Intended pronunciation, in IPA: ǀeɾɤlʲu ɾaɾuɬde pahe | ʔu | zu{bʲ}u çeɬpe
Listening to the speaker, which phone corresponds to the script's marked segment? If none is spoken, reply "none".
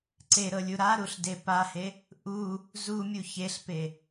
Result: mʲ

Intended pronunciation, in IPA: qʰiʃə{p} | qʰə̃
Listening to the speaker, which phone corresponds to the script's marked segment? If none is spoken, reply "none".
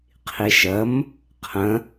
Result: m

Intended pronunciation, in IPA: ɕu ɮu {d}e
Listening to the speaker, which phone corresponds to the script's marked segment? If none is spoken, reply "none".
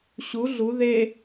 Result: ð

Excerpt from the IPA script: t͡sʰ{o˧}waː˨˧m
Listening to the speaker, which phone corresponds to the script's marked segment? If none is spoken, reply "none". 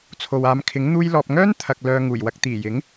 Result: o˨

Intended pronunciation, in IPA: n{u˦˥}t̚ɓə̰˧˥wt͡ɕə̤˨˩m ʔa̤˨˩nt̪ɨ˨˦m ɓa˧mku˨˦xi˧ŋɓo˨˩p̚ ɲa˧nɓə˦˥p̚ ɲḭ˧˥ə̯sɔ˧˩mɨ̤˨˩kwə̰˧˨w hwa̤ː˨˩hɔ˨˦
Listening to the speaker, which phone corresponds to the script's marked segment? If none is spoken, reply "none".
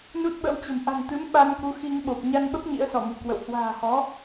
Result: u˦˥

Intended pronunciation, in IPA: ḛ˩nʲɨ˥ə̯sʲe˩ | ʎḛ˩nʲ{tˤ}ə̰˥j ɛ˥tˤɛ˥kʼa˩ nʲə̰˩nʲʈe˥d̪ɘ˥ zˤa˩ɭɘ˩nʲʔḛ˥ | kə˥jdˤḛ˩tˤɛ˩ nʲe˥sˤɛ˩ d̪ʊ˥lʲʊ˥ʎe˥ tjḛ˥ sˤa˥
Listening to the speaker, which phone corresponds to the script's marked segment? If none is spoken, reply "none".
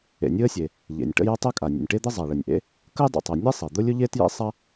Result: ʈ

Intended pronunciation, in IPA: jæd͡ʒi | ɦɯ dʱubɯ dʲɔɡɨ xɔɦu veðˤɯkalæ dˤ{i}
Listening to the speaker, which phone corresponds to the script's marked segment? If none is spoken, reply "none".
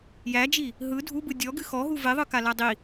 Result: i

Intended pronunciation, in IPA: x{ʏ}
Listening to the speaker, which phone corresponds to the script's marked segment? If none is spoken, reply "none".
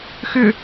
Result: ʏ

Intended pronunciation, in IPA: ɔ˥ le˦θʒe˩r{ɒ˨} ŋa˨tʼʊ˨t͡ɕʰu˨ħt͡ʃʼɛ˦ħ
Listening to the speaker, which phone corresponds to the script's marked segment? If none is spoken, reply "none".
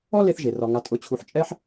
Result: ɒ˨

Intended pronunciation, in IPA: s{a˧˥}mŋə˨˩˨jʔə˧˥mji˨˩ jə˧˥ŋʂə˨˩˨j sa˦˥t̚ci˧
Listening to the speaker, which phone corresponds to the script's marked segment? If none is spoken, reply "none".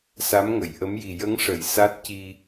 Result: a˧˥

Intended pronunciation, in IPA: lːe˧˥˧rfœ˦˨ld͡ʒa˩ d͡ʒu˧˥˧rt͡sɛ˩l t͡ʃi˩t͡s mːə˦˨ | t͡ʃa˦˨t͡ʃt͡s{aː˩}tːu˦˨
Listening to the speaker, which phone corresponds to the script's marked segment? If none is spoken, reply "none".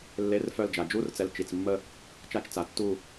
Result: a˩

